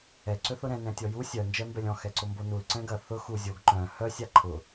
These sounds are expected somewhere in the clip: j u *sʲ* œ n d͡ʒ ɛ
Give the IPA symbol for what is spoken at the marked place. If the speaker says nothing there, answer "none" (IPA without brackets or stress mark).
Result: sʲ